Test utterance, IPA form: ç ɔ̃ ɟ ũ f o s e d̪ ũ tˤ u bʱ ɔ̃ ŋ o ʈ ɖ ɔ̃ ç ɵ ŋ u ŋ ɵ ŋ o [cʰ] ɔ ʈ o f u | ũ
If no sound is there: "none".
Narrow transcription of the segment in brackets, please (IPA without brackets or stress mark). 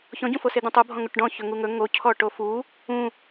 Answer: cʰ